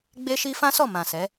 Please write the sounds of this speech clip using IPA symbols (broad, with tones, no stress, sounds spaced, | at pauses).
ɡ͡b e˦ ʃ i˦ f ã˦ s ɔ˦˨ m ã˨ s ɛ˨˦